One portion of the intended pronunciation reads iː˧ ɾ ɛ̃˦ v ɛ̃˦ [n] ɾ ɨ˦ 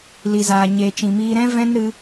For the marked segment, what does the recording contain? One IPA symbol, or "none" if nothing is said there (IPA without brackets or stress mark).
n